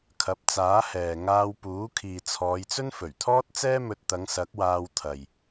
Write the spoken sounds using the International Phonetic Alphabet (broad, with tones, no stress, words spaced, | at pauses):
kʰɐ˨˥p̚t͡saː˨˥hɛː˨ ŋaː˧wpuː˨˥ kʰiː˨t͡sʰɔː˨˧jt͡sɵ˥n fɵ˨˩ɥt̪ʰɔː˥t̚ t͡sɛː˥mɵ˧t̚t̪ɐ˨˧ŋ sɐ˨˥k̚waː˧w t̪ʰɐ˨j